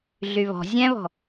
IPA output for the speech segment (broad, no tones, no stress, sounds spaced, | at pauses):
ɮ y β ɔ̤ zʲ ɛ̃ β ɔ̤